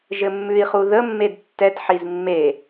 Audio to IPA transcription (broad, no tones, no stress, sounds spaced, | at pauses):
ʒ ɘ mː ʉ i̯ χ u ð ə mː e d tː ɛ t ħ i z mː e